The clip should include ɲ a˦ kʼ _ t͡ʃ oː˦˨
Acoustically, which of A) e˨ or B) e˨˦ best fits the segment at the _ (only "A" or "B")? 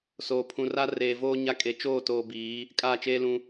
B